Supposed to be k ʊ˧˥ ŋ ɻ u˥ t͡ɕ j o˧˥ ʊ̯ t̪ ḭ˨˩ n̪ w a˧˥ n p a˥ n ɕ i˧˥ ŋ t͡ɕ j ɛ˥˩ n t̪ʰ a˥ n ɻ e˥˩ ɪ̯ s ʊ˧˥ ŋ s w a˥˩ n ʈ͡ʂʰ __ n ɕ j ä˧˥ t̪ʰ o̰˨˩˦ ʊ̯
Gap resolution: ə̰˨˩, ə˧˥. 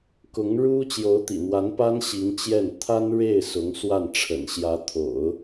ə̰˨˩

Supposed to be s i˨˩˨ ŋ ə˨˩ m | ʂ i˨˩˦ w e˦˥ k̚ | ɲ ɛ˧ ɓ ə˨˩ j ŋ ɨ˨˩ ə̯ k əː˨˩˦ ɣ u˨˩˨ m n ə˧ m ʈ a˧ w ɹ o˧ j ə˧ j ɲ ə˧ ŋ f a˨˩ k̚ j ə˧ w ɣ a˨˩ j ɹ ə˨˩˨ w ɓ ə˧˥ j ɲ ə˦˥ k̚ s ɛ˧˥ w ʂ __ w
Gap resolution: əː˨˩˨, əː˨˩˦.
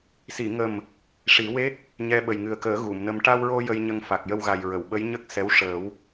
əː˨˩˦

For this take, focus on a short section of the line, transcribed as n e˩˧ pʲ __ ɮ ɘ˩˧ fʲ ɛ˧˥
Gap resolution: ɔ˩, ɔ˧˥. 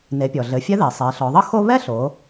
ɔ˩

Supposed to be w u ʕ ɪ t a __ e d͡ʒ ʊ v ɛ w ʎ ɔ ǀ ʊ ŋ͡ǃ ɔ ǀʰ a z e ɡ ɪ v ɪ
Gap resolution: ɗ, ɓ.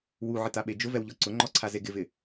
ɓ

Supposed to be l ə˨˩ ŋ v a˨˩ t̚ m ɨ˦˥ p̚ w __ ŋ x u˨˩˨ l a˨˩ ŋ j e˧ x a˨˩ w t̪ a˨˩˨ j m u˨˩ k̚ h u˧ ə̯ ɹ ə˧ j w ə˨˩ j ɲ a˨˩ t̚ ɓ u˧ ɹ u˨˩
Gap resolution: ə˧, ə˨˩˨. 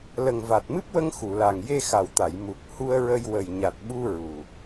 ə˧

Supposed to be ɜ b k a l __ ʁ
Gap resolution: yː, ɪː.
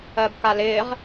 ɪː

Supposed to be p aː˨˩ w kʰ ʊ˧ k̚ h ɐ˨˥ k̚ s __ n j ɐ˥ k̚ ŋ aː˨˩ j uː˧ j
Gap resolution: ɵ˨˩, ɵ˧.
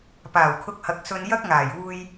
ɵ˧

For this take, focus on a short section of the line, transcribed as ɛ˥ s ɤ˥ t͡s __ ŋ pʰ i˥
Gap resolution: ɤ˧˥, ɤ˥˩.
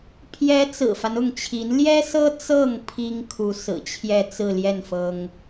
ɤ˥˩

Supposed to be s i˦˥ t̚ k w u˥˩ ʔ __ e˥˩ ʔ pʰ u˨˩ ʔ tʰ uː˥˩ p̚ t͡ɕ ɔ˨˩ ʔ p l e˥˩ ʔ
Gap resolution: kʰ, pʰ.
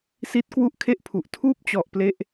kʰ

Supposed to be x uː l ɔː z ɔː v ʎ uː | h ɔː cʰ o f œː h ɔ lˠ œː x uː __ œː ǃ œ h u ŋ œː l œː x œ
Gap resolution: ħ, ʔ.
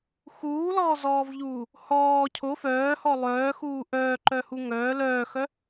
ʔ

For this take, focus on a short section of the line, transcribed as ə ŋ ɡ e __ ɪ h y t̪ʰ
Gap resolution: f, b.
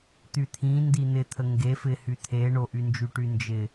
f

